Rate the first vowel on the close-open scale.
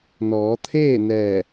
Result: mid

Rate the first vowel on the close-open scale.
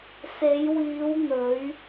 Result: mid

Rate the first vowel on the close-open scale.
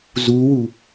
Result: close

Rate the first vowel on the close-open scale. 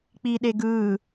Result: close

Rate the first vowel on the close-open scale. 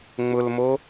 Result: close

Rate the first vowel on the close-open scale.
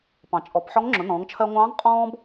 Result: open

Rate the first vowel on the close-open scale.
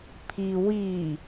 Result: close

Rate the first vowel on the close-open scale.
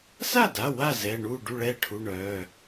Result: open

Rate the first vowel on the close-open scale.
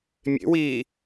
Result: mid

